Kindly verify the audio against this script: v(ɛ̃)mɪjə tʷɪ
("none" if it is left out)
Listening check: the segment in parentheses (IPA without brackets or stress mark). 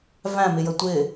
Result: æ̃